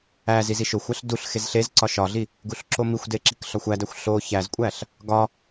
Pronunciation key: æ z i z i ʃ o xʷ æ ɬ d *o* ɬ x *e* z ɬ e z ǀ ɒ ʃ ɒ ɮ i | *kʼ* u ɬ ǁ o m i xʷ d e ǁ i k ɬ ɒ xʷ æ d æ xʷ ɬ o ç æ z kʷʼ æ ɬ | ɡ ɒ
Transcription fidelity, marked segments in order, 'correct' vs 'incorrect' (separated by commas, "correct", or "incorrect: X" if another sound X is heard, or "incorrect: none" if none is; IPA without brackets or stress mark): incorrect: u, correct, incorrect: ɡ